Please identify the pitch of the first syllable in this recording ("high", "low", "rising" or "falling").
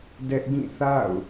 high